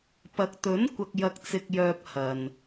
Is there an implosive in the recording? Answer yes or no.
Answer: no